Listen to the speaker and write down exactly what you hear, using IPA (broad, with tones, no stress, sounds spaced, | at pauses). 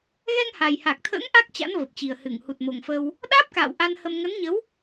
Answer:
ɣ ɛ˧ ŋ h a˨˩ j h a˨˩ k̚ t̪ʰ ə̰ː˧˥ ŋ ʔ a˦˥ k̚ t͡ɕ a̰˧˥ n v ə˨˩ p̚ t͡ɕ i˨˩ ə̯ h ɨ˧˩ ŋ h u˨˩ t̚ m o˨˩ ŋ f ə˧ w | ɗ aː˦˥ p̚ k a̰ː˧˨ w ʔ a˧ n h ə˧ m ŋ ə˨˦ n ɲ ə˨˦ w